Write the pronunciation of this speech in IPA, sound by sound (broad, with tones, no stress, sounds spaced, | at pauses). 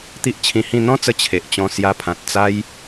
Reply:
t̪ i˦ ʔ t͡ɕʰ ĩ˧ h ĩ˥˧ n̪ ɔ̃˦ t͡s ə˧ t͡ɕʰ e˨ ʔ t͡ɕ ɔ̃˧ s j a˧ pʰ ã˨ t̚ t͡s a˦ j